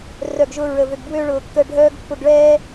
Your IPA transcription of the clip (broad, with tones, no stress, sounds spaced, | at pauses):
r œ˦˨ ɡ ʒ ʊ˦ ɹ ə˧ v ø˧ ɡ b w ø˦ ɭ ʊː˧ kː ə˦˨ ɖʱ œː˦ ɡ pː ʊ˧ ɡ ɭ ɛː˦